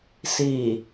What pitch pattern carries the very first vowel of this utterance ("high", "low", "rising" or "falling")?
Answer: low